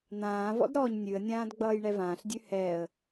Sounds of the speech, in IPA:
n̪ ãː v ɔ̰ d ɾ ɔː ɲ nʲ ʉ ə̯ nʲ ãː d ɡ͡b ʌː j ɳ ɛ v ãː ɬ dʲ ʉ h ɛ ə̯

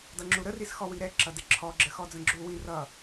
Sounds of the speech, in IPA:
d ʌ ŋ͡ǁ u ɾ ə r i s x ɔ w i ɾ ɛ ǁ ʌ d ɪ ǁʰ ɔ ɡ͡ǁ ə x ɔ d͡z ə̃ ɡ͡ǁ u w ĩ r ʌ

